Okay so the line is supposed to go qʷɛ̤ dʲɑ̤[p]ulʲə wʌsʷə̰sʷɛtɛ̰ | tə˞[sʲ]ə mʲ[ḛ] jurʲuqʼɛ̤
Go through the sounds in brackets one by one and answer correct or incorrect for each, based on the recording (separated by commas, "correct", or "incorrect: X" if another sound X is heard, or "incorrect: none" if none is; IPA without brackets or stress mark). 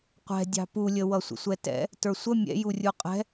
correct, incorrect: sʷ, incorrect: ɛ̰